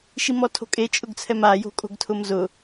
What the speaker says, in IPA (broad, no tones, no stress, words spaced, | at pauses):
ʃimɔtʰo̤kʼe t͡ʃʼʊɡt͡sʰɛma jo̤kʼo̤ɡtʰʊmzʊ